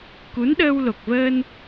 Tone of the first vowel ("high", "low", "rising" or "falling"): rising